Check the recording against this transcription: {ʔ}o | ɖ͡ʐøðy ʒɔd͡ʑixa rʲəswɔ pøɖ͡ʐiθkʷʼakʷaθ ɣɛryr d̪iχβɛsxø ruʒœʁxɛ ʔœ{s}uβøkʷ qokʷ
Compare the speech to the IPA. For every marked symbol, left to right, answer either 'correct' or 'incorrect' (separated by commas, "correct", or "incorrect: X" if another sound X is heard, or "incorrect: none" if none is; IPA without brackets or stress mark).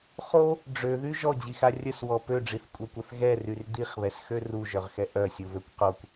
incorrect: χ, incorrect: sʲ